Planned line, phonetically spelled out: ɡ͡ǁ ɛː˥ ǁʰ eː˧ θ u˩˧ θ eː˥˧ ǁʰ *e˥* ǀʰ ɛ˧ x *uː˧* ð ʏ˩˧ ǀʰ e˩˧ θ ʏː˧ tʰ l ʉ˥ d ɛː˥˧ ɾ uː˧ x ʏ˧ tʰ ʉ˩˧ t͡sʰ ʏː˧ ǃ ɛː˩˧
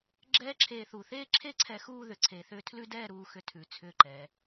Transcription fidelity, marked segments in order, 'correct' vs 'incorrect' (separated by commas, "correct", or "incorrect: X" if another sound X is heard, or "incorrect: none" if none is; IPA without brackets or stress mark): correct, incorrect: uː˥˧